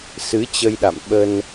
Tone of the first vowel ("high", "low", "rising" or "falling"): rising